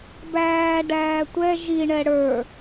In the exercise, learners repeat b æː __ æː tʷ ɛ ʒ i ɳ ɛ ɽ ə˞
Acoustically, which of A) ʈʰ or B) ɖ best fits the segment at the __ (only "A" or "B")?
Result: B